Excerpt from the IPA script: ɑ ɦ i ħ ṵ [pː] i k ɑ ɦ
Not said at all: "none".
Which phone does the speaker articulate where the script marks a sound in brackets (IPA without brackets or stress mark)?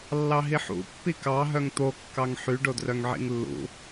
pː